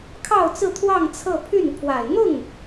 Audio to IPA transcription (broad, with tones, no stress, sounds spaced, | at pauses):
kʰ ɑ˥˧ ʊ̯ t͡s ɹ̩˥˧ t̪ʰ w ɑ˥˧ ŋ t͡sʰ ɤ˥˧ pʰ y˥˩ n pʰ w a˨˩ ɪ̯ n̪ ʊ˥˩ ŋ